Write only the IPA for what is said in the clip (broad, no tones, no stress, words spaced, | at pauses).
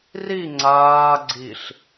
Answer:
ri ŋ͡ǀaː ɡ͡ǀiɬ